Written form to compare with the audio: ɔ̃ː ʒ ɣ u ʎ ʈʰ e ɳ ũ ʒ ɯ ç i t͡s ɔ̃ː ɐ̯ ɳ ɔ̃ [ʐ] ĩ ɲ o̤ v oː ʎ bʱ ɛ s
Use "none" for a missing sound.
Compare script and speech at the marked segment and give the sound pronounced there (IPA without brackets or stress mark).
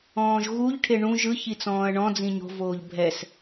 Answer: d͡z